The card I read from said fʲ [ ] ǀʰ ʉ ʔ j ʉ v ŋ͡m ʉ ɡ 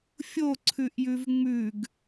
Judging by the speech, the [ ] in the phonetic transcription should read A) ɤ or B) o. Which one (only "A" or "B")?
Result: B